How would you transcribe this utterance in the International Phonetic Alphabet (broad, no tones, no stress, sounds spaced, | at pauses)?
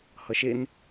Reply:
h ʌ ʃ e n